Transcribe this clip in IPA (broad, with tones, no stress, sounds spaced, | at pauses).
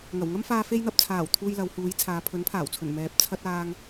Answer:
ŋ ɐ˨˩ w ŋ ɐ˥ m f aː˧ f e˧ j n̪ ɐ˨ p̚ t͡sʰ aː˨˩ w t̪ʰ uː˧ j l ɐ˨˧ w h uː˨˧ j t͡sʰ aː˨˧ pʰ ɵ˨˥ n pʰ aː˨˩ w t͡sʰ ɵ˨˩ n m ɛː˨ p̚ t͡sʰ ɐ˥ t̚ aː˥ ŋ